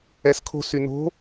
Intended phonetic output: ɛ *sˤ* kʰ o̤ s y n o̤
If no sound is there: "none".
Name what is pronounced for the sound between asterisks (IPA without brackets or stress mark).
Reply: s